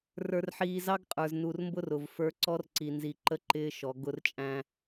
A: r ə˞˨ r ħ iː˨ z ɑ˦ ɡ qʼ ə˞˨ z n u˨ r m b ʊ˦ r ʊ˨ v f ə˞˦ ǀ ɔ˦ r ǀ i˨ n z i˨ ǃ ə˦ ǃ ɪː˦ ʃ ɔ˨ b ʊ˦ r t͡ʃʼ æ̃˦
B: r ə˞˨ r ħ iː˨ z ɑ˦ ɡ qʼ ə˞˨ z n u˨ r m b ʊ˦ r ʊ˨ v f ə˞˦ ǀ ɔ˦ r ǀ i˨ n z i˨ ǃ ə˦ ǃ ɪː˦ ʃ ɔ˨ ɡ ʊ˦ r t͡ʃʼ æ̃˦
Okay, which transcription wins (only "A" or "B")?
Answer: B